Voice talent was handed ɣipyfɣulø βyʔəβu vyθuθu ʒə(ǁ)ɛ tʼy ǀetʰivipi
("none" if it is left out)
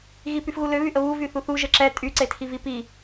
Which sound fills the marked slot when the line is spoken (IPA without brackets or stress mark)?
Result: ǁ